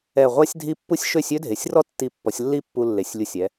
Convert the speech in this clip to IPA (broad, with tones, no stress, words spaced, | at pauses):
ɛ˧˩ʁʷa˥sʲdʱi˥˧pːu˥sʲ ʃø˥˧sʲø˥dʱe˩˧sʲrɔ˥ tːi˧˩pːɔ˩˧sʲlːi˥˧ pːu˧lːe˩˧sʲlʲu˧˩sʲ ɛ˩˧